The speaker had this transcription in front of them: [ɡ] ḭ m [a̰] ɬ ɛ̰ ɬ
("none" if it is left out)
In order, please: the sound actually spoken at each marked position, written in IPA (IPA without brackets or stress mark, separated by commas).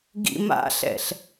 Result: ɡ, a̰